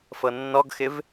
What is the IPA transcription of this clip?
fɤnːɔɡxɪv

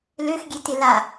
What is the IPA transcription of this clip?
løxɡʲe tɪla

